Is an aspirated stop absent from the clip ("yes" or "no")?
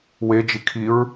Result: no